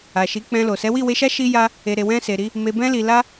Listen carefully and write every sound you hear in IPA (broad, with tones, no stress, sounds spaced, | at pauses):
a˨ ʃ i˨˦ k͡p ɛ̃˧ l o˨ s ɛ˨˦ w i˦˨ w e˧ ʃ a˦ ʃ i˦ j a˦ | e˨ ɾ e˨ w ɛ̃˧ s e˨ ɾ i˧ | m e˨ b ɛ̃˧ l i˨ l a˧